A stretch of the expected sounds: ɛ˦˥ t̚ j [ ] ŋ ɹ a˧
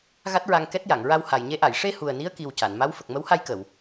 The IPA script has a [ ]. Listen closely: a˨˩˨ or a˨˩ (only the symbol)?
a˨˩˨